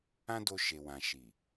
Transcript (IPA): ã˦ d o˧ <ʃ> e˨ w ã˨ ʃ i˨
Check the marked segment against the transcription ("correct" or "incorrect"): correct